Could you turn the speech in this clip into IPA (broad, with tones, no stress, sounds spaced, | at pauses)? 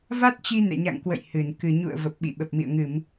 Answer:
v a˦˥ t̚ t͡ɕ i˧ n ɛ̰˧˨ ɲ a̰˧˨ ŋ k w ə̰˧˨ j h ɨ˧˩ n k ɨ˨˩ ɲ ṵ˧˨ ə̯ v ə˨˩ p̚ ɓ ḭ˧˨ ɓ ə˨˩ p̚ m ḭ˧˨ ə̯ ŋ ɨ˧˩˨ m